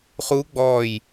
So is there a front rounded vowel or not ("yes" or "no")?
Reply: no